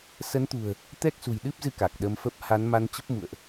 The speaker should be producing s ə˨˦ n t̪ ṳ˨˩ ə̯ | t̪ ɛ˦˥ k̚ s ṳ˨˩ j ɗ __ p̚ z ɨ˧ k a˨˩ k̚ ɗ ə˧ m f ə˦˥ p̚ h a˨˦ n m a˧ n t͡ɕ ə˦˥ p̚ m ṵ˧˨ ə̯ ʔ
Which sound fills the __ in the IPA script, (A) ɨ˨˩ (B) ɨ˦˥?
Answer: B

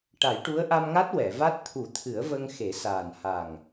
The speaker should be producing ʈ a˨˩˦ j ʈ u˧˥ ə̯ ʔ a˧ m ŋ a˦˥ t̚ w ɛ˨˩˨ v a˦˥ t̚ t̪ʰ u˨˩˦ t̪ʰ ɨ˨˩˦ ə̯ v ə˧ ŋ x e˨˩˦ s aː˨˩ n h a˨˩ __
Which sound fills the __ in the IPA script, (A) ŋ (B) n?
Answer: A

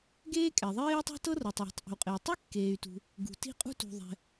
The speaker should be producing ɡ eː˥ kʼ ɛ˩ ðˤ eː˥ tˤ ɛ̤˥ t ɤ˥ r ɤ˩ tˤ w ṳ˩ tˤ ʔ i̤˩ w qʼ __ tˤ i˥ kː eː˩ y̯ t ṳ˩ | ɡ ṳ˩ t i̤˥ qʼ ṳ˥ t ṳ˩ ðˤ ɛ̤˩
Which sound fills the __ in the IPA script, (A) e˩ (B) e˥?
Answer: A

